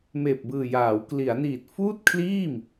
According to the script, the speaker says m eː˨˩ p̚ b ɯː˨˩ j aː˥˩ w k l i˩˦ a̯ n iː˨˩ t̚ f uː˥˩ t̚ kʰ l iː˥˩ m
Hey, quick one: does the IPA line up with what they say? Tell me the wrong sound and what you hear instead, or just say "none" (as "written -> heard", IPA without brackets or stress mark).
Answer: aː˥˩ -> aː˩˦